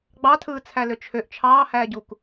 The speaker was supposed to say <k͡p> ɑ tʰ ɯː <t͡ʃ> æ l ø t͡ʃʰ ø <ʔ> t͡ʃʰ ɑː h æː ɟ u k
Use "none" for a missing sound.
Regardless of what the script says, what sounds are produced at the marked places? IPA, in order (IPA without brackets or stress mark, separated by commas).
ɡ͡b, t͡sʰ, ʔ